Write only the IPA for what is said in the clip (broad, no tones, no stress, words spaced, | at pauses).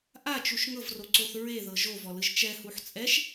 ʔat͡ʃuʃ ŋɤvroǀoθ ɹeðɤ ʒovɔlɯʒ t͡ʃɛhuħ t͡sʼɛʃ